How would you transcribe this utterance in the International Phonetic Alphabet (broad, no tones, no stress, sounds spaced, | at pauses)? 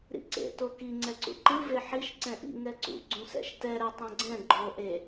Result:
ɾ ḭ ǀ ḛ t o k i ŋ͡ǀ ɛ ǀ ṵ ǃ ɯ v e ħ i ʃ ǀ ɛ̃ ʔ ḭ ŋ ɛ ǀ ṵ ɡ͡ǀ ũ s ɛ̰ ʃ t ɛ ɾ ɛ tˤ ɛ̃ ɡ͡ǀ ɛ̃ ɡ͡ǃ o ʔ e